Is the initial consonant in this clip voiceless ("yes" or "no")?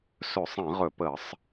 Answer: yes